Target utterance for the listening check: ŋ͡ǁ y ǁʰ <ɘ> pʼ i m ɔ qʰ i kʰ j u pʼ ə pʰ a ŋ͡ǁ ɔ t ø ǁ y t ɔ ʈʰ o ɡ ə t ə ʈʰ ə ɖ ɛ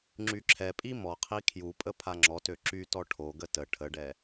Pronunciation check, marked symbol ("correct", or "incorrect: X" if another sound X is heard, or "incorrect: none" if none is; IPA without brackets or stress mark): incorrect: ɛ